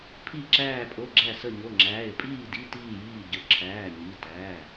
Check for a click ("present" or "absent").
present